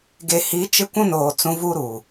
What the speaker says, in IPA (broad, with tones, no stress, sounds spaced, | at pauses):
ɡ e˨ h i˨˦ t͡ʃ ɪ˦ kʷ ũ˦ n oː˨ t͡s ũ˨˦ v u˦ ɾ u˨